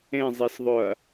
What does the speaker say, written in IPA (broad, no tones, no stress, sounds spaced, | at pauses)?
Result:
ẽ zˤ e s ðˤ ʊ ɐ̯